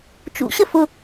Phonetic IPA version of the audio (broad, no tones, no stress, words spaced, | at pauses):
t͡ʃṵɕə fʊ